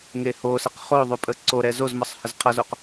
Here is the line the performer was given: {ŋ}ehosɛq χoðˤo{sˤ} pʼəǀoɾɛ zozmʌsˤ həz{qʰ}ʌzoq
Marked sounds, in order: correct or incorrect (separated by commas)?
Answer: correct, incorrect, correct